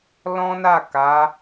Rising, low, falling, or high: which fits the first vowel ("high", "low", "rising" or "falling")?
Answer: high